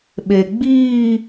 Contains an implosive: yes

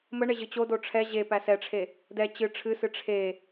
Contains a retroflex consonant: yes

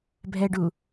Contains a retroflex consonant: yes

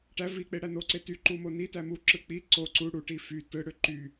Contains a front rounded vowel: yes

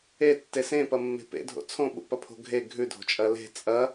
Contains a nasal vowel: yes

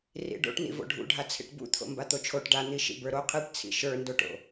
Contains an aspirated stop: yes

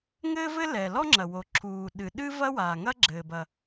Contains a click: yes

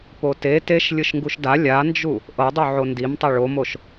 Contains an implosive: no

